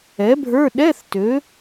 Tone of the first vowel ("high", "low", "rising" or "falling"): rising